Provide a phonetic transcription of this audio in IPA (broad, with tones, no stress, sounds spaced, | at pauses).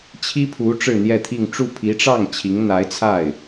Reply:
t͡ɕʰ i˥ pʰ u˧˥ ʈ͡ʂ ɻ̩˥˧ n̪ j ɛ˥˧ t̪ʰ i˥˧ ŋ ʈ͡ʂ u˥˩ pʰ i˧˥ ʈ͡ʂ ɑ˥˩ ŋ t͡ɕʰ i˧˥ ŋ n̪ a˧˥ ɪ̯ t͡sʰ a˥˩ ɪ̯